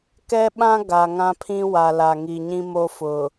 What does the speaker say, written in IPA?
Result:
k ɛ˦ ɓ ã˦ ɡ a˨ ŋ ã˦ pʰ ĩ˦ w a˨ l a˨ ŋ i˨ ɲ ĩ˦ m o˦ f ʊ˨

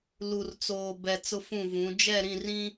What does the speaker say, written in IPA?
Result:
l u˨ r t͡s oː˨ b ɛ˨ t͡s ʊ˦ f ũ˦˨ v ũ˨˦ d͡ʒ ɛ˦˨ ɾ ĩ˦˨ r ĩ˦

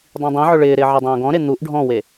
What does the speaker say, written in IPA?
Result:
dˤ ĩ dˤ ĩ ʕ ʊ ɭ ɪː ɾ ɪː ʕ ɛ dˤ õː ɡ ɔ̃ ɾ e n̪ u ʔ ɖʱ ɔ̃ w e

